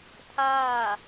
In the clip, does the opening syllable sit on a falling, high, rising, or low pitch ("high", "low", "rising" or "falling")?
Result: falling